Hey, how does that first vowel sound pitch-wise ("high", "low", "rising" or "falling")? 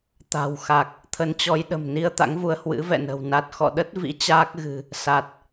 low